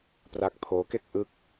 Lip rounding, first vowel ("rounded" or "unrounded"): unrounded